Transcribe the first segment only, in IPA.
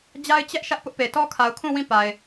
d͡ʑ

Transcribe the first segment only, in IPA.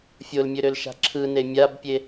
fʲ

